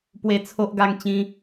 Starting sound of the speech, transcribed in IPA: p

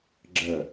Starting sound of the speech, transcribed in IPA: ɡ͡ǁ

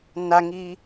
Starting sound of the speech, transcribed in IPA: n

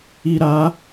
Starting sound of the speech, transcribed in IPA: i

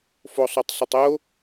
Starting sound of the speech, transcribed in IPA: f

